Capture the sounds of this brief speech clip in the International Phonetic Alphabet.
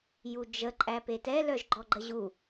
j u d͡ʒ ə ǃʼ æ p e t ɛ l œ ʒ ɡ͡ǃ ɔ ɡ͡ǃ ə ʑ u

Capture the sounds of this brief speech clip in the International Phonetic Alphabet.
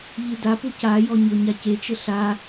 ʎ ɨ d a p u c a j ɔ ɲ o ɲ a c e t͡ʃ ɘ ɬ a

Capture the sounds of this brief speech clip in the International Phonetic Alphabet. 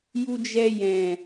j u˧ d͡ʒ ɛ˧ j ɛ̃˨

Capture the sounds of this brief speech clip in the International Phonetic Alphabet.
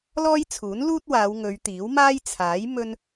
l ɔː˥ j t͡sʰ uː˨˥ n l uː˥ t̚ w aː˨˧ w ŋ ɵ˨˧ ɥ t̪ iː˨˥ w m aː˥ j t͡sʰ aː˨˥ j m ɵ˧ n

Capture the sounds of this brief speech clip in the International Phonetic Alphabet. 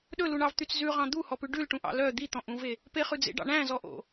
ɗ ɵ l u ɳ ɑ v t̪ y t͡s z ʉ ʁ ɑ̃ d̪ u h ɔ p ʉ ɖ ʉ l ʈ ũ ʔ ɑ̰ l œ d̪ i t̪ ɔ̃ ʔ ũ v e | p e χ ʉ d͡z ḛ ɖ ɑ̰ ɳ æ̃ z ɔ ʔ o̰

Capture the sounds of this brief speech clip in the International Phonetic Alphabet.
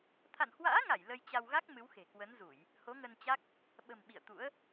t̪ʰ a̰˧˨ n h w a̰ː˧˥ ŋ a˧˩ j l ə˧ j t͡ɕ a˧ w ɣ a˦˥ k̚ m ɨ˨˦ w x e̤˨˩ k w ə˨˦ n z u˧˩˨ j | h o˨˦ ŋ ə˧ n t͡ɕ a˦˥ k̚ | ɓ ə̤˨˩ m ɓ ḭ˧˨ ə̯ t̪ ṵ˧˥ ə̯

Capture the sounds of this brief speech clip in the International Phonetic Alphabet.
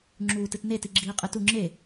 ŋ͡ǁ uː t ɨ t n e t i ɡ͡ǁ iː qʼ ɨ t u ŋ͡ǁ e

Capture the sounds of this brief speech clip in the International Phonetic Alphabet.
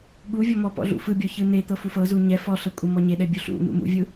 ɠ u vʲ ɔ m ɔ p ɔ̰ ɮ ṵ f ɯ bʲ ɔ ç ɯ n̪ e t̪ ɤ f u f ɤ z u ɲ ɛ f ɔ ɬ ɤ kʷʼ ɤ m ɔ ɲ e ɗ ɛ bʲ u ɬ ṵ n̪ ṵ m ṵ vʲ ɯ

